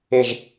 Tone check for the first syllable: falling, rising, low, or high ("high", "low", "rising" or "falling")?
falling